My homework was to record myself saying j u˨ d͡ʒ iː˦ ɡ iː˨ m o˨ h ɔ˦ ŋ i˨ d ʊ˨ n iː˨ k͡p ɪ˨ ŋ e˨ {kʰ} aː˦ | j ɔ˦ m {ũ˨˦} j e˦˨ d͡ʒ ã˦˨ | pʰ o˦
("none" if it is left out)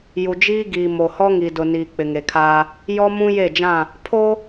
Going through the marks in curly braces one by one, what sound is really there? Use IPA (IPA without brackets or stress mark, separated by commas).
kʰ, ũ˦